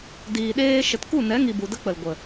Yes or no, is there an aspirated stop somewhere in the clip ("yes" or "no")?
no